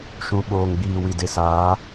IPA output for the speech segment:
ʃũ˨ ɓoː˨ŋɡ͡biː˨wi˨de˨ saː˨˦

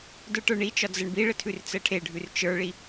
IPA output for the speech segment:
də˞ʈə˞ɳit͡ʃɒ d͡zəɳbiɭə tʰʉrt͡səʈʰeɖʱʉr t͡ʃə˞ɭi

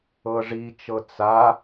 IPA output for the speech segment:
ɤʐit͡ʃɤ t͡sa

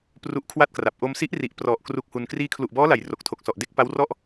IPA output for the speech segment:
pru˦˥ʔkʰwa˥˩t̚kra˨˩p̚ ʔo˧msi˦˥ʔri˨˩ʔ prɔ˨˩ʔ kru˦˥k̚hu˧n kriː˧kʰlu˨˩ʔbɔː˦˥la˩˦j ro˨˩k̚tʰo˨˩k̚sɔ˨˩ʔde˥˩k̚ pa˦˥wrɔ˥˩ʔ

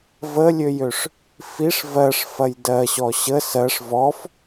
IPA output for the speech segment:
vəlʲøjøʂ | fiʂ vɜʂfɐj dɜɕɔ ɕə sɜʂ vɔf

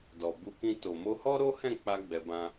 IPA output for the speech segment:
dɔ˨bu˧kĩ˧ to˨mo˧hɔ˦ ɾo˦hɛ̃˦˨k͡pa˧ ɡ͡bɛ˧bã˦

